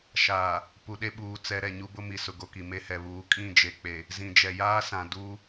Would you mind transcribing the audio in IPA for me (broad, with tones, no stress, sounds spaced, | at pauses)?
ʃ aː˨ | p u˨ ɗ e˦ ɓ uː˨ t͡s ɛ˨ ɾ ɛ˨ ɲ u˦ b ʊ˦ m i˨ s ʊ˨ ɡ o˨ k i˨ m e˦ h ɛ˨ β uː˨˦ kʼ ĩ˦˨ d͡ʒ e˨ k͡p e˨ | z ĩ˨ d͡ʒ ɛ˨ j aː˦ s ã˨ d u˦